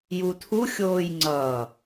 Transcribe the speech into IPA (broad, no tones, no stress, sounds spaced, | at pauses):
j u tʰ u xʲ oː j ŋ͡ǀ ʌ